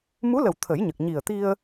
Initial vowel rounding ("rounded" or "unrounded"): rounded